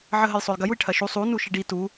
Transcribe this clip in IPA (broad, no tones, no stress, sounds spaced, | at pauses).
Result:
ʕ ə ɦ ə j sˤ o j ɡ ɐ j u j ʈʰ ɐ ʃ u sˤ u n u ʃ i ɖ i t u